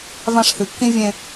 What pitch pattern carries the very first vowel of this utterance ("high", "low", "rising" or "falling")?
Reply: high